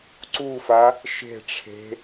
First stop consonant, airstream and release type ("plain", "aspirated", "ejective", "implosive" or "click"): click